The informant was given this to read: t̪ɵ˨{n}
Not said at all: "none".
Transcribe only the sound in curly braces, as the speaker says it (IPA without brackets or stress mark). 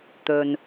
n